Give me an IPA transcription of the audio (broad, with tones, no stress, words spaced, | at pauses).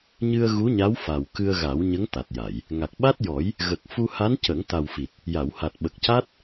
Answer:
ɲɨ˧ə̯ ɣu˧˥ɲa˧˥w fa˨˩w kɨ˧ə̯ɣa˨˩˦w ɲə˧˥ŋ t̪a˨˩t̚ja˨˩˨j | ŋa˨˩k̚ɓa˦˥t̚jɔ˨˩˦j | ɣə˨˩k̚ fu˧ ha˧˥ncə˨˩˦ŋ t̪a˨˩wfi˨˩t̚ | ja˨˩˨wha˨˩t̚ɓə˨˩k̚ca˦˥t̚